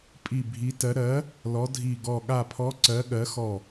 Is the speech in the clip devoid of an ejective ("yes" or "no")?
no